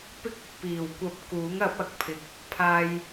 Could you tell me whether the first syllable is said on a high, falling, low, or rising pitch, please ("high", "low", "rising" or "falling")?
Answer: high